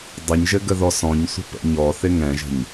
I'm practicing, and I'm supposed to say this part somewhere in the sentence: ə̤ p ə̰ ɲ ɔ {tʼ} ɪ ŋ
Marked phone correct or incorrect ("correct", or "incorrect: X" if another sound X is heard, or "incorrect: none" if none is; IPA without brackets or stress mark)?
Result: incorrect: θ